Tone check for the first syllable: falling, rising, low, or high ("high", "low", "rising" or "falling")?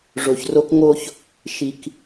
low